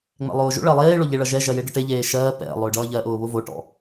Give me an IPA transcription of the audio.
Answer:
ŋ͡m ɛ̰ lˠ ʊː ʒ o̰ ɭ ɜ lˠ eː ɭ o ʎ e ɭ ʌ ʒ ɛ ʒ ɜ j e ɖ ɒ ʈ e ʎ eː ʃ ɜː p ɛ̰ lˠ ʊː ɖ ʌː ʎ ɜ ʔ ʊː β ʊ v o ʈ ɔ̰

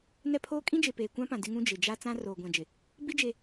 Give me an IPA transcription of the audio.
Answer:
n ɛ˦ pʰ oː˦ kʼ ĩ˦ d͡ʒ e˨ p eː˨ kʷ ã˦ p ã˨ d ɪ˦ ŋ ũ˦ d͡ʒ ɪ˨ d͡ʒ a˦ t͡s ã˦ r oː˨ ɡʷ ã˨ d͡ʒ ɪ˨ | b i˦ d͡ʒ e˦

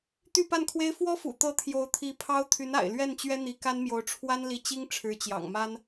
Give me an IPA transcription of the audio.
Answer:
t̪ y˥˧ p a˥˩ n kʰ w e˥ ɪ̯ f w ɔ˥ f ṵ˨˩ t̪ ɤ˧˥ t̪ʰ j o˧˥ ʊ̯ t̪ʰ i˧˥ pʰ ɑ˥ ʊ̯ t̪ʰ y˧˥ n a̰˨˩ ɪ̯ l ɥ ɛ˥˩ n t͡ɕ ɥ ɛ˥ n̪ i˧˥ k a˥ n m j o˧˥ ʊ̯ ʈ͡ʂʰ w a˥ n l i˧˥ t͡ɕ i˥ ŋ ʈ͡ʂʰ ɻ̩˧˥ t͡ɕ j ɑ̰˨˩ ŋ m a˥ n

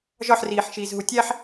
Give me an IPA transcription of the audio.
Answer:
ʒ ɒ ħ r iː ħ ʃ iː z ɦ u tʲ æ ħ

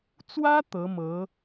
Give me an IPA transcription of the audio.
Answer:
t͡s w ä˥ t̪ ɤ˧˥ m ɤ˧˥

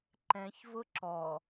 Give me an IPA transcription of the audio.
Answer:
ǃ ɛ̃ ç v ʊ ǁ ɔ

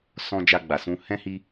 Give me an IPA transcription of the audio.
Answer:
s ɔ̃˧ d͡ʒ a˧ ɡ͡b a˨ s ũ˧ h ɛ̃˦ h i˦

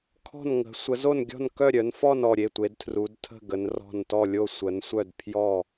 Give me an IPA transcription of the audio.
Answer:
kʰ ɔ̤˥˨ n ŋ ə̤˨˦ sʷ ə˨˦ z o˥˨ n ɡʲ ɔ̤˥˨ n k œ˥˨ ɾʲ œ˨˦ n f ɔ˥˨ n ɔ˥˨ ɾʲ e˥˨ tʷ e˨˦ d tʰ r u˨˦ d tʰ ə̤˥˨ ɡ ə˨˦ n r ɔ̤˥˨ n t ɔ˥˨ lʲ o˥˨ sʷ ə˨˦ n sʷ œ˥˨ d pʰ j ɔ˥˨

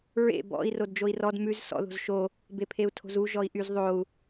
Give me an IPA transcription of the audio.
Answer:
ɹ ḛ b ɔ̰ i̯ r o d d͡ʒ o i̯ r ɔ d m ʉ z s ɔ̰ ð o̤ z ʃ o | b e pʰ e u̯ tʰ o̤ z u ʒ ɔ i̯ ʔ y z ðˤ o u̯

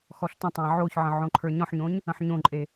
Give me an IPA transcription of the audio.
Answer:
x ɔ ɬ t ə̃ tˤ æ̃ ʕ o ç ʕ ə̃ ʕ õ ǃʰ ə˞ ɲ ɔ̃ ħ ɲ õ ɲ | ə̃ ħ ɲ õ ǃʼ e

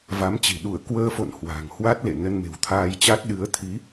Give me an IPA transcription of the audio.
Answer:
v a˨˦ m t͡ɕ i̤˨˩ ɗ u˧˩ ə̯ k w əː˧ f o̰˧˨ n h w a̤˨˩ ŋ h w a˦˥ t̚ l ḛ˧˨ n ə˧ n m e̤˨˩ w t̪ʰ aː˧ j t͡ɕ a˦˥ t̚ ɗ ɨ˨˦ ə̯ t̪ʰ i˨˦

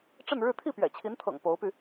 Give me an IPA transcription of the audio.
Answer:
ʈ͡ʂ ə˥˧ n ɻ ɻ̩˥˧ t̪ʰ i˥˩ p ɥ ɛ̰˨˩ t͡ɕʰ i˧˥ n t̪ʰ ɤ̰˨˩ ŋ p o˧˥ ʊ̯ p y˧

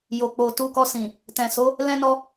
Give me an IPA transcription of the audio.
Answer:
j o˨ k͡p o˨ t u˧ k ɔ˧ s ĩ˨ | t ɛ̃˨ s o˨˦ | l ɛ̃˦ n ɔ˦

